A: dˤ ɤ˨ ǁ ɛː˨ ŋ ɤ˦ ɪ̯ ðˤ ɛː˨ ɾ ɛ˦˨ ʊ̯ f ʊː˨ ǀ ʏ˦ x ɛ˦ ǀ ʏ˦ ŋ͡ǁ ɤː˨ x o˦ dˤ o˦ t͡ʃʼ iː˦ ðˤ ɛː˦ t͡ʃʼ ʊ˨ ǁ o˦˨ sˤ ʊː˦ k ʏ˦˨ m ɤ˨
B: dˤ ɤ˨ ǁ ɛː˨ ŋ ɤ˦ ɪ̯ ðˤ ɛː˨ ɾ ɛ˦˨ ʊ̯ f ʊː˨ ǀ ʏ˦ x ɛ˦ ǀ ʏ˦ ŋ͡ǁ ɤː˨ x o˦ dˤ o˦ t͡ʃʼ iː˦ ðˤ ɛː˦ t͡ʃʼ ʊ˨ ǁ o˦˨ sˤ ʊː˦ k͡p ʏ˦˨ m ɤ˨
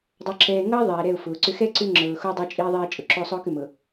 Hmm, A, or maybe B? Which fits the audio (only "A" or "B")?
A